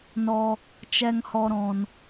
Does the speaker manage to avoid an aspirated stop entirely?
yes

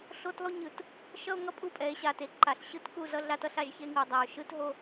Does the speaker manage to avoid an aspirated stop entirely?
yes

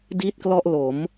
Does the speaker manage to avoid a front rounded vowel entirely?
yes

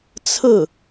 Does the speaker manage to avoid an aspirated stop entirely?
no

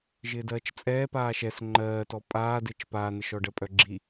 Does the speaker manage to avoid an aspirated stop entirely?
yes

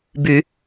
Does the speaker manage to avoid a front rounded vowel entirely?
no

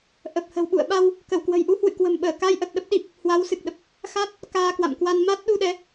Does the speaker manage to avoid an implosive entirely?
no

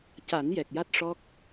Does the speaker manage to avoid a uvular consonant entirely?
yes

